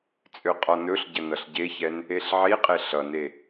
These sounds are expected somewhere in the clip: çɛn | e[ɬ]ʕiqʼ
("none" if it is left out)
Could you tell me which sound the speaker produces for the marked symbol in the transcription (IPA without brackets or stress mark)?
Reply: ɬ